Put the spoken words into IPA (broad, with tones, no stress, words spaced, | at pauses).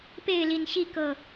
pe˥˨ɪ̯li˨˩nɕi˥˨ kɤ˨˩